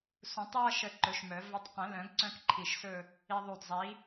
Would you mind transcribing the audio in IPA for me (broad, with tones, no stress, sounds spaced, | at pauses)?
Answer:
s ũ˨˩˦ tˤ j ʌ˥˧ ʃ ə˧˩ ǃ ɵ˨˥ ʃ m œ˨˩˦ v ɵ˧ tˤ q ə̃˨˩˦ l œ̃˨˩˦ ɡ ǀ œ̃˥ k ǃʰ i˧˩ ʃ s ɵ˥˧ | i˧ ðˤ u˧˩ d zˤ i˨˥